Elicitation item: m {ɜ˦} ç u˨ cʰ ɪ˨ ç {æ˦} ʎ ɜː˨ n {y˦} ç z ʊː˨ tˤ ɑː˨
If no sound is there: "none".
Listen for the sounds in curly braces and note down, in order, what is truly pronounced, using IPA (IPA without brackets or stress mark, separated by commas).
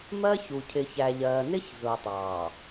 ɜ˦, æ˨, ɪ˦